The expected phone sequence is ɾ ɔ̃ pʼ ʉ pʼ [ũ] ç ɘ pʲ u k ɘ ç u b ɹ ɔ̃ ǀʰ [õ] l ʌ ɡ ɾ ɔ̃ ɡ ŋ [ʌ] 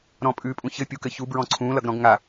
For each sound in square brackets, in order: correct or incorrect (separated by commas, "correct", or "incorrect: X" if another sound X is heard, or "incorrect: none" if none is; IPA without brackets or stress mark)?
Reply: correct, incorrect: ũ, incorrect: a